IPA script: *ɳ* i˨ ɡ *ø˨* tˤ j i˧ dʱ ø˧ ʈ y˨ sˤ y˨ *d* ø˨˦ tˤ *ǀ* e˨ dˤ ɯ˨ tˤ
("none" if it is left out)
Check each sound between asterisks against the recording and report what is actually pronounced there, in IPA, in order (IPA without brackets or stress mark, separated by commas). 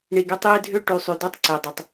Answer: ɳ, ø˧, d, ǀ